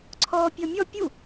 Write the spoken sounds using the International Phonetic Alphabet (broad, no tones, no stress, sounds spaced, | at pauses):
ǀʰ ɔː pʲ ɔ mʲ ɔ pʲ u